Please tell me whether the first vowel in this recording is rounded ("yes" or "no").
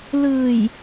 no